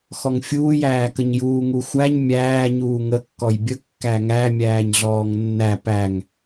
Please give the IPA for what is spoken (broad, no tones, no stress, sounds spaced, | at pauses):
x ɔ ŋ fʲ uː j æː k ə ɲ j uː ŋ u xʷ æ ɲ mʲ æː ɲ uː ŋ ə kː ɔ j bʲ ə kː æ ŋ æ mʲ æː ɲ ɮ ɔː ŋ nː æ p æ ŋ